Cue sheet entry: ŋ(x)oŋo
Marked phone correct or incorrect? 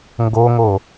incorrect